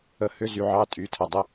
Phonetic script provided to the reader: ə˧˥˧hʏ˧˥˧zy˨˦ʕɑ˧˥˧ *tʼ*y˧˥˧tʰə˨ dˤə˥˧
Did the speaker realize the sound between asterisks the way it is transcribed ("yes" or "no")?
yes